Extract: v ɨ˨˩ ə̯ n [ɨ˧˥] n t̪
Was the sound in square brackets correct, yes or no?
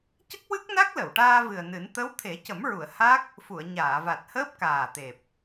no